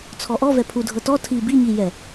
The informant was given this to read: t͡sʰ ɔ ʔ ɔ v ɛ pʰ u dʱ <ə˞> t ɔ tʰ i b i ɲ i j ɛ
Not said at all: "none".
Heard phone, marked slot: ɤ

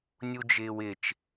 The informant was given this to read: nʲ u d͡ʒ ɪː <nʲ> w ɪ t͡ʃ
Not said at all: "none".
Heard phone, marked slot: none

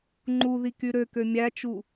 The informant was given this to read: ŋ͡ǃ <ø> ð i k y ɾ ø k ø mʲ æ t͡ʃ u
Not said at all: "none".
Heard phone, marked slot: u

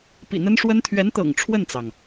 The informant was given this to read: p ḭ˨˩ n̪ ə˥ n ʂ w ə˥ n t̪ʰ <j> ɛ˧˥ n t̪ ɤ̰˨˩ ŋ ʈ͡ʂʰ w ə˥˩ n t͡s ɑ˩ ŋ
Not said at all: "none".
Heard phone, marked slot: ɥ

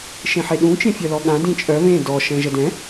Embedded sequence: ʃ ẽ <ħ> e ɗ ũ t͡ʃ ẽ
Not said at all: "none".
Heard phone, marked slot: ħ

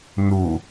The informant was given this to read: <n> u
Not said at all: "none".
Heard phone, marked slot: n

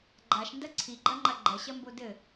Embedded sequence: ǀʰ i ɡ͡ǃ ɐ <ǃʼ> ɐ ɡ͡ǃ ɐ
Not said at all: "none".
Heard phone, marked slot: ŋ͡ǃ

